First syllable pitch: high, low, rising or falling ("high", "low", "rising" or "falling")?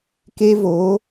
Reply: high